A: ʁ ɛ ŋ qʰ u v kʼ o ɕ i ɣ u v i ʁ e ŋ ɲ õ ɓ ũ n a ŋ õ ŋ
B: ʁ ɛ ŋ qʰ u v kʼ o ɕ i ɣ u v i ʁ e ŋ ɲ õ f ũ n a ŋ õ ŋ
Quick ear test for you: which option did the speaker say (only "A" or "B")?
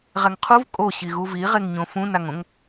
B